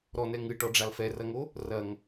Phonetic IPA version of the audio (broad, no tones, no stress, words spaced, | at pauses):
ɾɔnɛ ŋɨʈɔɖ͡ʐal fɛrɐŋo | rɐŋ